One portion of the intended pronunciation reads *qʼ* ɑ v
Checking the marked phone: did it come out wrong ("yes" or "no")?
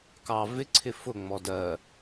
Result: yes